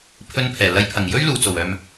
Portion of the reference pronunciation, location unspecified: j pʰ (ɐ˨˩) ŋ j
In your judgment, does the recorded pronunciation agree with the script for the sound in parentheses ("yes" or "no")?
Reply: yes